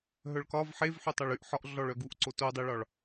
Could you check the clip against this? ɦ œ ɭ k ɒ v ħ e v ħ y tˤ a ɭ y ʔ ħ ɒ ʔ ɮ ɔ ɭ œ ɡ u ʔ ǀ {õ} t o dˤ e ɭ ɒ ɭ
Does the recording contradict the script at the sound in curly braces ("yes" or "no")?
yes